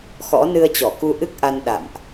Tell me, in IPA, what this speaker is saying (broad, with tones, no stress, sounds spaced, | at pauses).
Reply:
x ɔ̰˧˥ n ɨ˧ ə̯ t͡ɕ ɔ˧˩ k u˧ ʔ ɨ˦˥ k̚ ʔ a˧ n ɗ a̰˧˨ m ʔ